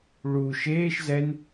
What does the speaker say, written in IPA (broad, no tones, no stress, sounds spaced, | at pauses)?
ɭ u ʃ eː ʃ z ɛ n